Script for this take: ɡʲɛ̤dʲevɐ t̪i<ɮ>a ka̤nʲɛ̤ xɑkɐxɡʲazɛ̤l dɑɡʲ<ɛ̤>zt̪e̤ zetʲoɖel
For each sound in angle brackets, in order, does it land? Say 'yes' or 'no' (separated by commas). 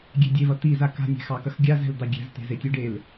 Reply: no, yes